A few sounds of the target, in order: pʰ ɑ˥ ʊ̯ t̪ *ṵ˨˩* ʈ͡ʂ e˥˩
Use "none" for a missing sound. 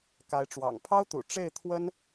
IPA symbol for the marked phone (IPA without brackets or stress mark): ṵ˨˩